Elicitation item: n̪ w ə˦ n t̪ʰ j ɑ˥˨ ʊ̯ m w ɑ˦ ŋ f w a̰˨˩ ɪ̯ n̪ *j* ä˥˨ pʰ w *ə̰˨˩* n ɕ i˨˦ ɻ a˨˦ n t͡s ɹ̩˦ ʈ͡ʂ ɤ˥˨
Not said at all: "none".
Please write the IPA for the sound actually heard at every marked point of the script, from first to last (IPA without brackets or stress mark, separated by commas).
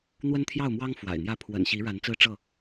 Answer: j, ə̰˨˩